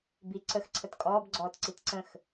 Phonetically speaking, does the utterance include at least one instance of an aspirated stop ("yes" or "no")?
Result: yes